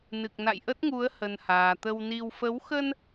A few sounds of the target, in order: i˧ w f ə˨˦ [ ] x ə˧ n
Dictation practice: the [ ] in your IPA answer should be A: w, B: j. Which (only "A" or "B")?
A